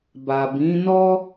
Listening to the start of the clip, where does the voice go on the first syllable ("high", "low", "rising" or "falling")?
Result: low